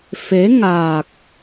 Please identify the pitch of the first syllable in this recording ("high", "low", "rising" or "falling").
rising